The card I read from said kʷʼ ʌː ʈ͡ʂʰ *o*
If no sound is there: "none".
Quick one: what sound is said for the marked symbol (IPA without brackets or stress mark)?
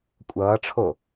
o